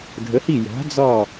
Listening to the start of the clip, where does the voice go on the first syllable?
rising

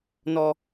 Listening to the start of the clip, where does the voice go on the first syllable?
low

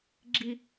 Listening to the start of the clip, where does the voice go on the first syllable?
high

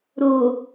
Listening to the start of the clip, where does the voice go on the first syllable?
low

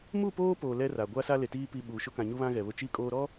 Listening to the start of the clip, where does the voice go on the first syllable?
falling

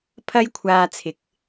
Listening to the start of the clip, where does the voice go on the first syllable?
high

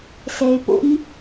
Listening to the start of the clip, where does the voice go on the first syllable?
low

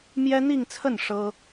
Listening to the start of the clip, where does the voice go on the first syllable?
high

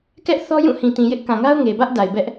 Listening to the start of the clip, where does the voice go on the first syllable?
high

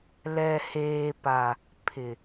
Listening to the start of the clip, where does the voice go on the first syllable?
low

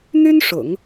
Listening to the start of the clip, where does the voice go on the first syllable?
high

